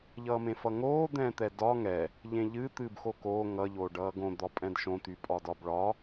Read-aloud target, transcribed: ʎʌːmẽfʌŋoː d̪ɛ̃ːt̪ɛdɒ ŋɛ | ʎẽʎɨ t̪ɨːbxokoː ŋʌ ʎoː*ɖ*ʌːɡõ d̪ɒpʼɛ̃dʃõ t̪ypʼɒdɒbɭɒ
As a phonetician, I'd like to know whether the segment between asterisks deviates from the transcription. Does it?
no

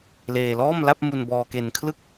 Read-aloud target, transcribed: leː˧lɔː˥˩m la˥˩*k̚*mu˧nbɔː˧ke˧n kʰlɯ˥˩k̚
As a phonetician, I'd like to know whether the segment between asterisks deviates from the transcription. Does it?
yes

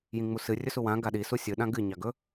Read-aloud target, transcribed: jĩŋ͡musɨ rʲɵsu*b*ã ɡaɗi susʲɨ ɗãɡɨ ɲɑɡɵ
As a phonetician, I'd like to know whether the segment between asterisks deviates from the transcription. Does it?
yes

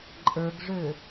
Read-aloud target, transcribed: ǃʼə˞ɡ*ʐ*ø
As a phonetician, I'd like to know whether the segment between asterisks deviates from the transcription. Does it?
no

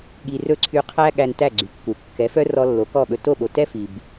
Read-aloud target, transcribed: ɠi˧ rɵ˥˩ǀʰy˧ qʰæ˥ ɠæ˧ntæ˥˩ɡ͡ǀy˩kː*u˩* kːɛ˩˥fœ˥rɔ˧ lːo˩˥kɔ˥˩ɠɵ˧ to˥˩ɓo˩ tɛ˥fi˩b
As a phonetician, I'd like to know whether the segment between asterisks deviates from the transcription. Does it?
no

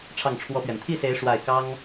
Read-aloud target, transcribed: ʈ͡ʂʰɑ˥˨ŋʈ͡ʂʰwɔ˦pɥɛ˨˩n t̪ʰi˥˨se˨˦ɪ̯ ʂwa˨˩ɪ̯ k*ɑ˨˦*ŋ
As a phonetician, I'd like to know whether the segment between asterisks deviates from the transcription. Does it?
yes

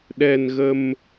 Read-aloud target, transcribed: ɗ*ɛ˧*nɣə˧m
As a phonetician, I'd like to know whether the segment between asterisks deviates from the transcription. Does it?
no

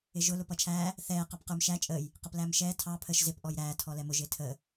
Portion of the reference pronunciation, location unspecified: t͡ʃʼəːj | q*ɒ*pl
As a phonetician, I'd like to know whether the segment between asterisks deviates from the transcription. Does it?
yes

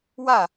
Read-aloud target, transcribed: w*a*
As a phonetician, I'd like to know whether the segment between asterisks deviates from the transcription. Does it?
no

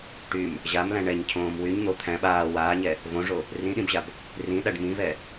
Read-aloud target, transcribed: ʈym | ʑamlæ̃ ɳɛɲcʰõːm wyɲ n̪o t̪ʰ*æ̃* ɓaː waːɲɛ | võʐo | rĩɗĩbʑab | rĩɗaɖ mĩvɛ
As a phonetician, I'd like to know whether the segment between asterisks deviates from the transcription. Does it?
no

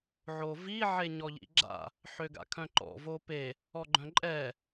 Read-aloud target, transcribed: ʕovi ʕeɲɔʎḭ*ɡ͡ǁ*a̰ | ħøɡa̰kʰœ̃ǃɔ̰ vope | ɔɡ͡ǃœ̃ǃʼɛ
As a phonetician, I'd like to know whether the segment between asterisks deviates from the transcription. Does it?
no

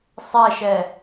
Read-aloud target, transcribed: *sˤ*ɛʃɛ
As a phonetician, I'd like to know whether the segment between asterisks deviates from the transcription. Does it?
no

